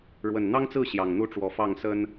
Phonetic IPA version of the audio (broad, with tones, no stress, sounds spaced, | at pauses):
ɻ w ə˨˩ n n̪ ɑ˦ ŋ t͡s ɹ̩˥˨ ɕ j ɑ˨˩ ŋ n̪ u˥˨ ʈ͡ʂ w ɔ˨˦ f ɑ˥˨ ŋ s ə˦ n